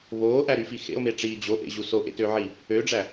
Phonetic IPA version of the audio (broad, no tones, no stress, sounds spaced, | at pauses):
β oː ʔ æ ɾ y f i x ḛ o̯ m e ʈ͡ʂ iː d͡ʑ o ʔ ḛ ʑ u s o ʔ ḛ t ø ʕ i | ø ɖ͡ʐ æ